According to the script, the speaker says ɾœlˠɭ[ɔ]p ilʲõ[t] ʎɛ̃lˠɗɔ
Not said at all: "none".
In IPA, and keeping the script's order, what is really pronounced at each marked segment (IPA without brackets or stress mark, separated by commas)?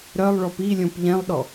ɔ, p